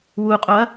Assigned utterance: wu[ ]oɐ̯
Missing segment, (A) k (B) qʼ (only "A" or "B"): B